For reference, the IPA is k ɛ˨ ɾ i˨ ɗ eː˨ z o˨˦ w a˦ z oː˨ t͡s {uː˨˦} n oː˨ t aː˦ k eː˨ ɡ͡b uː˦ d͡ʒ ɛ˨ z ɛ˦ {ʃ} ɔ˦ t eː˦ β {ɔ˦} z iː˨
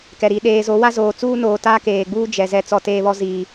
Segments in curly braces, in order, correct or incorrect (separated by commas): incorrect, incorrect, correct